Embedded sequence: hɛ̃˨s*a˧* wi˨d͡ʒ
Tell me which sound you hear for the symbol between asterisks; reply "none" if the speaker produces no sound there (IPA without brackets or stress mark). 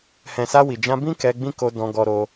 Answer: a˧